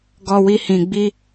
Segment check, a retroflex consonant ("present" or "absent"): absent